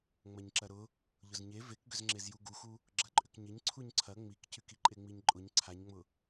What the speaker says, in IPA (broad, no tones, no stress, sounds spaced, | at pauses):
ŋ͡m ɐ ɲ ǁ ɐ ɾ ʊ | ʎ ʊ z ɲ e v e k ɡ ʏ z ŋ͡ǁ e z j u ɡ u x u | ɡ͡ǁ ɐ ǃʼ ʏ k ɲ ɪ ɲ ǀʰ u ɲ ǀʰ ɐ ŋ͡m i k c y k i ǃʼ e ŋ͡m i ɲ ǃʼ ʊ ɲ ǀʰ a ɲ ŋ͡m ʊ